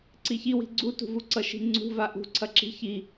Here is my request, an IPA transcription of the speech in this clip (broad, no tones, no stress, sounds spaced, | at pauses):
ǀ i ç i w i̤ ɡ͡ǀ u t ṳ v u ǀ ʌ ʃ i̤ ŋ͡ǀ ṳ v a ʔ ṳ ǀʰ ɐ ǁ i̤ ç i